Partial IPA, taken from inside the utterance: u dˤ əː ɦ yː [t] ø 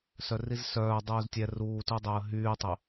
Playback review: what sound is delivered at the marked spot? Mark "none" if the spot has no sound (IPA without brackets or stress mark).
tˤ